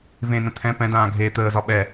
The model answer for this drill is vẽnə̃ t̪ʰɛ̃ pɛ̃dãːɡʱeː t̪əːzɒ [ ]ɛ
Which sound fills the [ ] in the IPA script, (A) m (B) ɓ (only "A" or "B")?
B